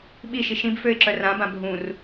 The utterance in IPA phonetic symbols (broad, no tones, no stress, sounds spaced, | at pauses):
ɓ i ʃ i ʃ ĩ b f ø ɪ̯ ǁ œ r ã b ã bʱ ũ r